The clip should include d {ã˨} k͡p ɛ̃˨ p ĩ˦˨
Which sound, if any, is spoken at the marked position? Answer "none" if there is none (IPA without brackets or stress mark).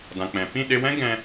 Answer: ã˨